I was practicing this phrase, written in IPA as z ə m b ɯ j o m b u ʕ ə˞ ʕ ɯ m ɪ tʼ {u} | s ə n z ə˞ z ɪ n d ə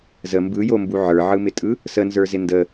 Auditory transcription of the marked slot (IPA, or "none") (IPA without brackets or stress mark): ɯ